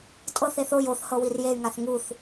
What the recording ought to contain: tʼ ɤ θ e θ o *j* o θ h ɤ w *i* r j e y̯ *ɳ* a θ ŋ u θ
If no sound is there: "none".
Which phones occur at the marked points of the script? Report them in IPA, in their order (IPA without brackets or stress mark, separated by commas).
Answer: j, i, ŋ